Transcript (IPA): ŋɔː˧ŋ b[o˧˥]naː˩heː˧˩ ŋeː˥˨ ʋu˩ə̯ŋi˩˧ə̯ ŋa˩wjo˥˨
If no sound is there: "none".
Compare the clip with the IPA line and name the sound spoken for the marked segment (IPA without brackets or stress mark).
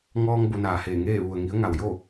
o˩˧